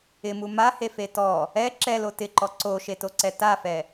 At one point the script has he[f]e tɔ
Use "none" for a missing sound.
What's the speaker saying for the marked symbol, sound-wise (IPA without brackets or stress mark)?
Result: f